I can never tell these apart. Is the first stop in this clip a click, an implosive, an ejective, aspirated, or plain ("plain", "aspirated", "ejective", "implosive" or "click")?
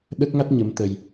implosive